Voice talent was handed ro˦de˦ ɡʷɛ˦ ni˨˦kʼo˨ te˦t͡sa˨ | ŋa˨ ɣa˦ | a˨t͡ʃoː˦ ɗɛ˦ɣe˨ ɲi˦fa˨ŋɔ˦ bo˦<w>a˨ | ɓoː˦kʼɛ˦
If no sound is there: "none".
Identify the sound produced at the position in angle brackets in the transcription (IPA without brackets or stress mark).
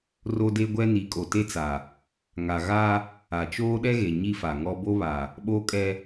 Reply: β